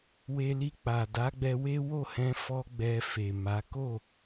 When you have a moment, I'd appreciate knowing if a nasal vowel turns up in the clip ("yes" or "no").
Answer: yes